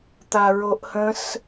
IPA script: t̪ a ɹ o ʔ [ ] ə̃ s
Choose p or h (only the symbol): h